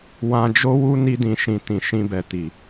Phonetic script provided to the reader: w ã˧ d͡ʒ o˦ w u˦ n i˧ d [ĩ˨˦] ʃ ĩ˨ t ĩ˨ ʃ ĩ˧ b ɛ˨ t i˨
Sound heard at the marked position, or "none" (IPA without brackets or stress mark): ĩ˨